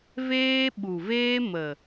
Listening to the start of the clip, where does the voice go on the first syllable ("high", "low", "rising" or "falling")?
high